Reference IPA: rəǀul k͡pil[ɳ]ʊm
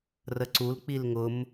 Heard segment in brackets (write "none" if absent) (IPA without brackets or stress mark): ŋ